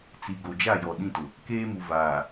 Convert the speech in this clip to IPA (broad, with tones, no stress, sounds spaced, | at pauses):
t͡s i˨ ɡ o˨ d͡ʒ a˦˨ j ɔ˨ ɗ ĩ˦ t ʊ˨ | k eː˦ m u˨ v aː˨